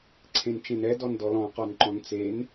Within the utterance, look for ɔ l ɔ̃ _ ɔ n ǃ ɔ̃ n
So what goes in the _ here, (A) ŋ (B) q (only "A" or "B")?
B